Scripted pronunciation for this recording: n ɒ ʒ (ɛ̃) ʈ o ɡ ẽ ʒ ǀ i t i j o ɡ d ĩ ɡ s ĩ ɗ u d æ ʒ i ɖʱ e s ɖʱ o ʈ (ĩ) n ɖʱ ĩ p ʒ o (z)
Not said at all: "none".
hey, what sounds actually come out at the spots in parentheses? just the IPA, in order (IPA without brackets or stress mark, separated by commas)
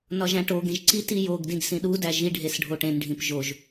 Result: æ̃, ẽ, ʒ